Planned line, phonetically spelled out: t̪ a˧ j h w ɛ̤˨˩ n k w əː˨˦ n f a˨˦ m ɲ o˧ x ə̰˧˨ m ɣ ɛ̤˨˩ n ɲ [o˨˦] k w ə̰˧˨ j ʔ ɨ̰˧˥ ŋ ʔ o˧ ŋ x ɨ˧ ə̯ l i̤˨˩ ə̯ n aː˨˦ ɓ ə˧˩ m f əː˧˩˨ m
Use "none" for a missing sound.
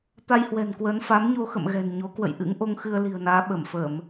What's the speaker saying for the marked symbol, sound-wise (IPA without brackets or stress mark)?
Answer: o˨˦